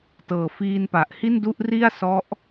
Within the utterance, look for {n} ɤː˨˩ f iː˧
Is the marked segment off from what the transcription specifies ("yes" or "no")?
yes